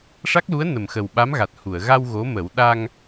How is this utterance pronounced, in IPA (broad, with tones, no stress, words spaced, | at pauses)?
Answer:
ʂa˦˥k̚lu˧˥ə̯ nə˨˩mxə˨˩w ɓa˧˥mɣa˨˩t̚hu˨˩˨ə̯ ɣa˧w ɣo˧˥mə˨˩˦w ɗa˧ŋ